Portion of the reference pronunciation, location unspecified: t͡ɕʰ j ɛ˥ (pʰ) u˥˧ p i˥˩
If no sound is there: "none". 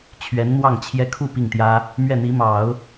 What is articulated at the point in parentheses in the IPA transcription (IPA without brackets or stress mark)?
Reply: kʰ